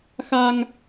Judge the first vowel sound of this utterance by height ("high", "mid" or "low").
low